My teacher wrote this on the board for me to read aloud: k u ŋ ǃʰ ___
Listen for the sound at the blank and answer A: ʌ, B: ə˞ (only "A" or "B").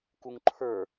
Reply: B